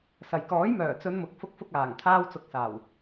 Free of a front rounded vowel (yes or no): no